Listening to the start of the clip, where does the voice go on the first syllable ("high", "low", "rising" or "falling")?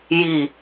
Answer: low